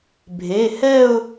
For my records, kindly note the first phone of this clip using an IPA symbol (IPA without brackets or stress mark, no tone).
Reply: bʱ